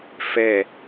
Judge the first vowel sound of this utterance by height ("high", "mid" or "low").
mid